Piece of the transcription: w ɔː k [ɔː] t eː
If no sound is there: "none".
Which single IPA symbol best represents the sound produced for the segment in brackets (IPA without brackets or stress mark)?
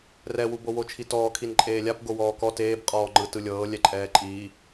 ɔ